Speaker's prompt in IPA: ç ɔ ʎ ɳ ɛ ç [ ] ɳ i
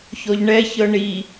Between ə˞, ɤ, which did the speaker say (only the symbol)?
ɤ